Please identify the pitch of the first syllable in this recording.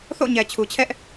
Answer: falling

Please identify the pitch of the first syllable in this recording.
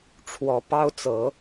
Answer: rising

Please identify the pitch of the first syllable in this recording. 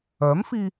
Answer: rising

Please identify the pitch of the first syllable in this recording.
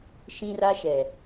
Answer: high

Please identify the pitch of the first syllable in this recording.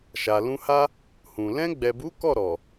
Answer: low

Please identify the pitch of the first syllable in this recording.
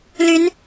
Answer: rising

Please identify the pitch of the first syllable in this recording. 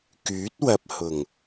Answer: rising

